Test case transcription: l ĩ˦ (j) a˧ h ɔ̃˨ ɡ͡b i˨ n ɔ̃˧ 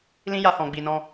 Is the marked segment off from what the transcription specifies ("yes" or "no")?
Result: no